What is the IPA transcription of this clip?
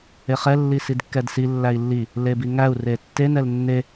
eχɛ lːisidkːɛdsi lːæi̯lːi | lebiŋæu̯ retːe nɛlnːe

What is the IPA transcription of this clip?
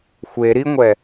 xʷe ɾiŋʷɛ

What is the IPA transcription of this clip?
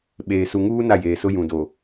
ɓeː˨su˨ŋuː˦ na˦˨jeː˨sʊ˦ jũ˨do˨

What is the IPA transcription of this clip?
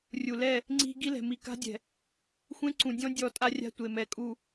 rʲu˨ lɛ˦˨ | ŋ͡ǀi̤˦ ɡi˦lɛ̤˨ mi˨ka̤˦dʲɛ̤˨ | xʷẽ˦ǀũ˨dʲɔ̃˦ dʲɔ˦˨tʼa˦rʲa̤˦ tʷe˨mɛ˨ kʼu˨

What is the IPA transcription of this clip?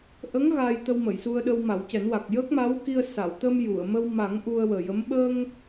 ʔə˧˥ŋ ɣaː˧j t̪ə˧wmə˨˩˨jsu˧ə̯ɗə˧w ma˨˩˦wcɛ˨˩˦nwa˨˩k̚ jə˦˥k̚ma˧˥wki˧ə̯ sa˨˩˨wt̪ə˧m ju˨˩˨ə̯ mə˧wma˨˩˦ŋ ʔu˧ə̯wəː˨˩jə˧˥m ɓə˧ŋ

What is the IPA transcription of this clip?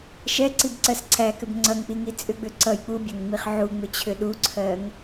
ʃɛǀibǀɜs ǀʰækʏb ŋ͡ǀʌŋk͡piŋi t͡sʼʏɡ͡bʏ ǀʌj k͡pubʲæŋŋ͡miχ ʕuŋ͡mʏt͡ɕʰʏ ɗuǀʰɜŋ

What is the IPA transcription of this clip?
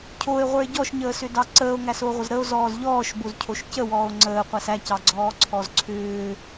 cʰoe̯ʁʷə˞e̯ ɟɔʃɲəːsʏdɑ ǀəːo̯ŋæsoʁʷəz ɾəo̯zɔːz ʎɔːʃbozcʰoʃ cəwɔːo̯ ŋ͡ǀəːqʷæs æcɑɡ͡ǀɔːǀʰɔz ǀʰʏː

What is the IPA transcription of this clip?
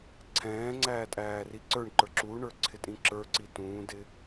ǀʰɛ̃ːŋ͡ǀæːtʼæː riǀə˞ɳǃə˞ ǁuɳə˞ǀʰɪtʼĩ ǁə˞ǀi tũːdɪ

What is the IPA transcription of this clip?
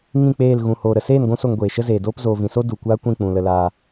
ŋĩ˦˨k͡peː˦˨l ɣũ˨ hoː˨ɾə˨seː˦˨n ɡʷũ˦so˧ŋɡʷeː˨ ʃə˦zeː˨doː˦p zoː˨vĩ˨so˦ du˨kʷaː˦kʷĩ˦˨ k͡pũ˨ lə˧laː˧

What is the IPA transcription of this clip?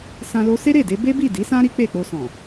sã˧lo˧ se˦ɾe˦˨de˧ be˦ bi˦˨di˨˦sã˦ ɾi˦k͡pe˦˨k͡po˧ sɔ̃˨

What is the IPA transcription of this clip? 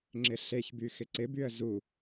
ŋ͡ǁɪɬeçby xɪǀɪbyə̯ zu

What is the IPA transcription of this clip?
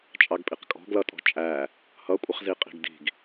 t͡ʃʼɑɡpʼiqkʼɔ̤ ɡlʌtʼɔ̤t͡ʃʼæ | hʌkʷʼɪχzi qʼi̤ɡdi̤ɡ

